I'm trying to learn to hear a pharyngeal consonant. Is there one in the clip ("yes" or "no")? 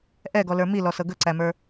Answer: no